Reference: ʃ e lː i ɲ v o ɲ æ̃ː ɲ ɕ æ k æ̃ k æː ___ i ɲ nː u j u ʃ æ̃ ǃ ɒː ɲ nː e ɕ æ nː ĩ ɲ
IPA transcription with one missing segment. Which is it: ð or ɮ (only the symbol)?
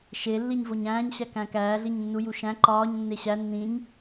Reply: ɮ